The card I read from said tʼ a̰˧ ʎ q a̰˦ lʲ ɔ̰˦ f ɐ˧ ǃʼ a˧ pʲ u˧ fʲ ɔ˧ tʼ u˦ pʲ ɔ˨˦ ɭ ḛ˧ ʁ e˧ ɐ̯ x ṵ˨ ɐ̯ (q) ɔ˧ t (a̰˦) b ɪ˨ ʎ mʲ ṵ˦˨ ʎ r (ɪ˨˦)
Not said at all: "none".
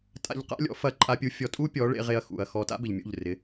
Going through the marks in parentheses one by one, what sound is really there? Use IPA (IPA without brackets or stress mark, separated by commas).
x, a̰˦, ɪ˨˦